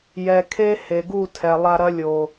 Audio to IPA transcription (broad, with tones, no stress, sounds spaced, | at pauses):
j ɛ˨ kʰ e˦ h e˨ ɡ u˦˨ tʰ ɛ˨ lˠ a˧ ɾ ɐ˦ lʲ o˨